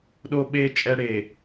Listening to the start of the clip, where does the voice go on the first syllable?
high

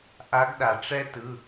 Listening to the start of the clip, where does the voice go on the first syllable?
rising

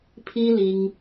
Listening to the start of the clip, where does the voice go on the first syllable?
high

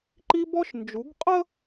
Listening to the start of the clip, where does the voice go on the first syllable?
high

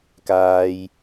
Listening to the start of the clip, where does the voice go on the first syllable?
low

